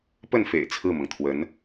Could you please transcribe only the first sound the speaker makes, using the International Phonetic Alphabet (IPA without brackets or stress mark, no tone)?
p